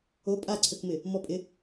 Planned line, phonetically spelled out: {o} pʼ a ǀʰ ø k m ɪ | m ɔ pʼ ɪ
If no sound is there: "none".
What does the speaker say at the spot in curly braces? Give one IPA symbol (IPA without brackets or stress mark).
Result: o